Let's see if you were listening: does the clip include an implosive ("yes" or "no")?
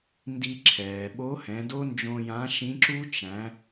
yes